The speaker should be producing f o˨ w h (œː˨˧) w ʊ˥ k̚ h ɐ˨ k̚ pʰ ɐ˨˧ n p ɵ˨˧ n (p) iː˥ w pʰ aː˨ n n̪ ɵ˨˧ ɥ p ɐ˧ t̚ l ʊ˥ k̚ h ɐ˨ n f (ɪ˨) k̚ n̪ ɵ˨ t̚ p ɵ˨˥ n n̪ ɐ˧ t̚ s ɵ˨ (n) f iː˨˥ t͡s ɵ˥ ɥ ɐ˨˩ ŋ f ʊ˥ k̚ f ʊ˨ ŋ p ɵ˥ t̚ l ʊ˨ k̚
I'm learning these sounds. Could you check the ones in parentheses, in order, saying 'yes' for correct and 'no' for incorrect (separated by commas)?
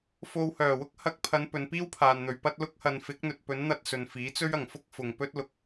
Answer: no, yes, no, yes